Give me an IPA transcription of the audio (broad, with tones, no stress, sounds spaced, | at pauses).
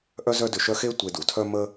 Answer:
ʔ œ˥ z œ˥ d ʏ˧ ʃ œ˥ x e˥ tʷ e˧ d u˩ tʰ œ˥ m ə˥